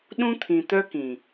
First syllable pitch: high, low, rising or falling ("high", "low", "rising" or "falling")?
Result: high